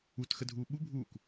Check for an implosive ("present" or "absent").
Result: present